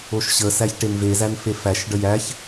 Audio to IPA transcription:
o ʃ ɕ ə s æ ç ʈ e n v e z æ n f e f æ ʃ ɖ ə j æ ç

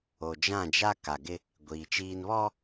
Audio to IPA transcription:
o˨ d͡ʒ ã˦˨ d͡ʒ a˦ k a˨ ɡ ɪ˦ | ɡʷ iː˨ t͡ʃ iː˦ n β ɔ˦

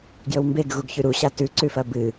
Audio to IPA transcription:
ɡ j ɵ w m b e ɡ ɣ u ɡ ç ʉ ɾ u ɕ a t ʉ ǀ ʉ f ɐ b ɨ

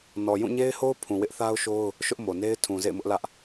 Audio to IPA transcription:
n ɔ˨ j ũ˦˨ ɲ e˦ ɪ̯ h o˦ ʊ̯ pʰ ũ˨ w ɪ˦ ʔ θ a˦ ʊ̯ ʃ o˦ ʊ̯ | ʃ ʊ˦ ʔ m o˨ n e˦ ɪ̯ tʰ ũ˨ z ḛ˦˨ ɪ̯ m ʊ˦ ʔ l ä˦ ʔ

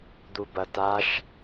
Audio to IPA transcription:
d̪ u b ɐ t a ʃ

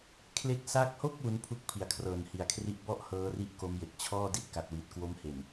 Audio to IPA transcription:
kʰ l e˦˥ k̚ s a˦˥ k̚ h o˥˩ k̚ w u˦˥ n pʰ u˦˥ k̚ pʰ i˨˩ a̯ kʰ r ɤː˨˩ n h i˨˩ a̯ kʰ r i˦˥ ʔ b ɔ˥˩ ʔ h ɤː˦˥ r i˦˥ ʔ k o˦˥ m j e˨˩ k̚ t͡ɕʰ ɔː˥˩ d i˥˩ t̚ k a˨˩ t̚ w i˨˩ t̚ k w o˦˥ m h e˨˩ n

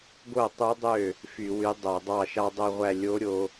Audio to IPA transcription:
ɡ o˥˩ tˤ u˧˥ dˤ ø˥˩ | f y˧˩˧ w y˧˥ dˤ o˧˩˧ dˤ ɑ˥˩ ʃ ɑ˥ dˤ o˧˩ ʁʷ æ˧˩ lʲ o˧˥ ɾʲ o˧

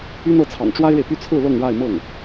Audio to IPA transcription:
y˥ n ɤ˥˩ t͡sʰ ɑ̰˨˩ ŋ ʈ͡ʂ w a˥ ɪ̯ ɻ e˨ ɪ̯ p y˥˧ t͡sʰ ɹ̩˥˧ l ɤ˥˧ ŋ ɻ a˥˧ ɪ̯ m ɤ˥˩ ŋ

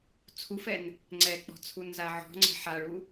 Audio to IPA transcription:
t͡sʰ u f ɛ n | ŋ͡ǀ ɛ k͡p ɔ̤ t͡sʰ u n z a ʕ ɔ̤ ŋ͡ǀ ɛ̤ ħ a ɭ u

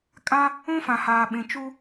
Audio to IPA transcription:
kʼ ã˦ | ũ˦ f ã˨ h aː˨ ɓ ĩ˨ t͡ʃ u˦

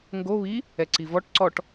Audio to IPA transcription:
ŋ ɡ o β i | ɛ ǀ i v ɔ ʈ ǀ ɔ ʈ

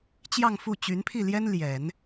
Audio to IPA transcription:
t͡ɕ j ɑ˥˧ ŋ f u˥˩ t͡ɕ y˧˥ n pʰ i˥˩ l j ɛ˥ n l j ɛ˨˩˦ n

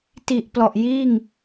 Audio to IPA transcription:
t i˨˩ ʔ p l ɔ˨˩ ʔ j iː˥˩ ŋ

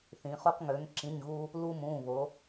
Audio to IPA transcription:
θ ĩ˩˧ χ u˧ q ŋ ø˩˧ ŋ ǁ ĩ˩˧˩ ɲ ɣ u˧ | l u˧ m ũ˩˧˩ β o˩˧

